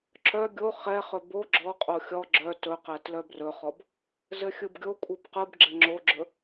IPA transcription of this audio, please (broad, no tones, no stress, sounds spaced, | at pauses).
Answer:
ǁ œ ɡʲ o χ ɛ χ ɵ b o ɡ͡ǁ ɔ qʼ o xʲ ɔ ɡ͡ǁ œ t ɵ q ɛ t l œ b r ɵ χ ɔ b | z ɘ xʲ ɯ b ɡʲ o kʷʼ ɯ b q ɯ b ɡ͡ǁ ɘ ŋ͡ǁ o ɡ͡ǁ ɵ